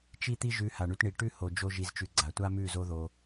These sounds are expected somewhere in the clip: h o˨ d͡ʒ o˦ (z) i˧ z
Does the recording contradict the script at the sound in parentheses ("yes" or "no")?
yes